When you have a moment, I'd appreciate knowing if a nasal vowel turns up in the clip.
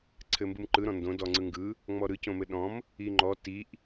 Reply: yes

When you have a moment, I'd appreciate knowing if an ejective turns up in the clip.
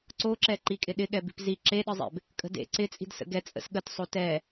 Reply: yes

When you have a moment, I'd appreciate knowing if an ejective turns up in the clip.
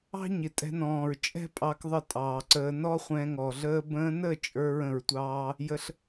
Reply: yes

